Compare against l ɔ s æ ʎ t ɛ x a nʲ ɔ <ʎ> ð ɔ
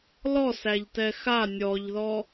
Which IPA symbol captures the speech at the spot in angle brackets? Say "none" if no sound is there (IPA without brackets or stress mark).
ʎ